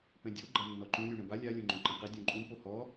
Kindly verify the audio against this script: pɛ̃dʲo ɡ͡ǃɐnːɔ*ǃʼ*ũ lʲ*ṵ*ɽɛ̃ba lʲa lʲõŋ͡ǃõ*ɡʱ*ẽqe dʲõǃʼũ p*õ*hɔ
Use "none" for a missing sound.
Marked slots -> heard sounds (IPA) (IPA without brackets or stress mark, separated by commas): ǃ, u, ǃ, o